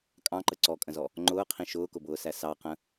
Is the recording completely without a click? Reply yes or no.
no